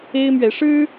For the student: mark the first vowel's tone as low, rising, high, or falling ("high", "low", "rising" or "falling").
high